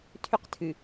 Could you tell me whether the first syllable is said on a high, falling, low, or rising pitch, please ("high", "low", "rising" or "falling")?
high